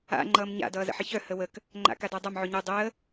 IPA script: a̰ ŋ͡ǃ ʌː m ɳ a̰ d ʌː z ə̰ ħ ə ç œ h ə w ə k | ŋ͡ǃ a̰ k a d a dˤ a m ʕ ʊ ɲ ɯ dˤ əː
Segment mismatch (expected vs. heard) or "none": ɳ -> ɲ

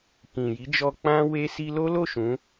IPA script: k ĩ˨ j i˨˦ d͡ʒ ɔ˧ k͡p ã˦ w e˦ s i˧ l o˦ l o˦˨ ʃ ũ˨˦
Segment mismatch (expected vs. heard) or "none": none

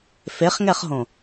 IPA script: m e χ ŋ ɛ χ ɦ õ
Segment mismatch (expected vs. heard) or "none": m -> f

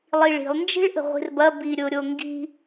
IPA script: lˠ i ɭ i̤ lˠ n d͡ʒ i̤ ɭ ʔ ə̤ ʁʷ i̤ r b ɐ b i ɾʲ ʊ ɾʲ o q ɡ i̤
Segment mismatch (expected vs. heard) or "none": q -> ŋ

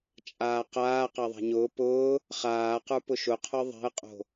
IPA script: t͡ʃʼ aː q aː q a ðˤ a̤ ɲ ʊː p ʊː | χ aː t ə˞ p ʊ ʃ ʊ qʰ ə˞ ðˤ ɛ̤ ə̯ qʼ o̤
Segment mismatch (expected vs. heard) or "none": t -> q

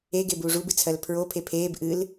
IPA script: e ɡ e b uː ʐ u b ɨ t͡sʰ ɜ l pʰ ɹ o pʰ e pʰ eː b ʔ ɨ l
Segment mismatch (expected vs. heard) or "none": none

